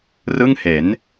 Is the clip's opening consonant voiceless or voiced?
voiced